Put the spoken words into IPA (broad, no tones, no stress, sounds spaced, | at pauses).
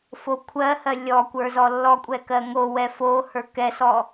f o kʷʰ ɜ h ɜ lʲ ɔ kʷ ə˞ z ɔ lː ɔ kʷʼ ɛ k ɜ ŋ o w ɛ f o h ə˞ k ɛ s ɔ